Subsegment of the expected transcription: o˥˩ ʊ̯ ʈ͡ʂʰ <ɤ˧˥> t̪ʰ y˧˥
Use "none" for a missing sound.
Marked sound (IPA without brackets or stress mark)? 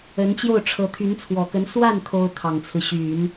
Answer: ɤ˧˥